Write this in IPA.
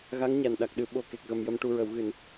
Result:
ɣ a˧˥ ŋ ɲ a˨˩ n ɗ a˨˩ k̚ ɗ ɨ˨˩˦ ɓ o˨˩ k e˨˩ k̚ ɣ ə˨˩ m j ə˨˩ m ʈ u˨˩ ɹ ə˨˩˨ w ɣ ɨ˨˩˨ n

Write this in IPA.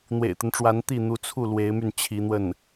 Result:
n̪ w ḛ˨˩ ɪ̯ t̪ ə˦ n ʈ͡ʂ w a˧˥ n t̪ i˥˩ n̪ u˧˥ t͡sʰ u˥˩ l w e˧˥ ɪ̯ m y˥˩ n t͡ɕʰ i˧˥ n̪ w ə˥˩ n

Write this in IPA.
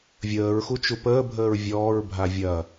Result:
vʲ əː ɹ x u t͡ʃ u p əː bʱ əː ɹ vʲ ɔː ɹ bʱ a vʲ ɐ

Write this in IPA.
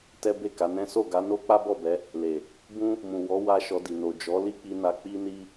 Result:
t ɛ˦ b e˦˨ k a˨˦ n ɛ̃˦ s o˦˨ ɡ a˨˦ n o˦ k͡p a˦ b ɔ˦˨ b ɛ˨˦ | l e˨ | b ũ˦ | m ũ˨ w ɔ˨˦ w a˦ ʃ ɔ˧ d i˨ n o˨ d͡ʒ ɔ˨˦ l i˦ k͡p i˧ n a˧ k͡p i˦ n i˦

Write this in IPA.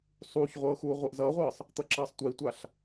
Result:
sˤ uː ç ʁʷ ɤː x uː ʁʷ i ʔ z ʌː ʁʷ ɤː sˤ | t̪ ʌ ǁ ʌː sˤ tʷ i tʷ a ɬ

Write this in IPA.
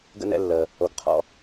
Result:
ɡ ə̰˥ n ɛ̰˦ lː əː˩ | o˨ ɡ qʰ ɔ̰˨

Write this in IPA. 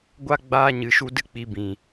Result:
ɡʷ a˦ ɡ͡b aː˦ ɲ ɨ˨˦ ʃ u˦ d ɨ˦ k͡p i˧ b ĩ˨

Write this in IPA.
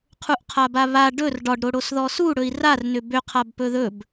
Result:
qʰ u ʔ qʰ a b a β a ɖ ɵ r ɖ ɒ ɖ ɾ o ɽ o s ð ɔ s u ɽ ɵ i̯ r a r n ʏ b ʏ qʰ a b p ɵ ð ɵ b

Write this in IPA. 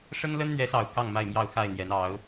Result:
ʂ ə˦ n l ə˦ n n̪ ɥ ɛ˨˦ s ɑ˨˩ ʊ̯ k ɑ˥˨ ŋ m a˥˨ ɪ̯ m j ɑ˥˨ ʊ̯ x a˥˨ ɪ̯ n̪ j ɛ˨˦ n ɑ˨˦ ʊ̯

